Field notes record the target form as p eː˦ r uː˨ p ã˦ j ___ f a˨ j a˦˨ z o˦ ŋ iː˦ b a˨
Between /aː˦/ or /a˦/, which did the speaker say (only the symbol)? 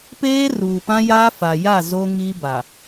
aː˦